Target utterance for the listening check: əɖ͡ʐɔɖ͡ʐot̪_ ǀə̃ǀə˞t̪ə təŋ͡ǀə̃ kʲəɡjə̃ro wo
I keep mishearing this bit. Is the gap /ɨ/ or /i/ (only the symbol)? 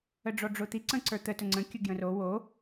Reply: i